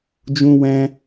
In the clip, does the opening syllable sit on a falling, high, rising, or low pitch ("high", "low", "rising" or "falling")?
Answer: high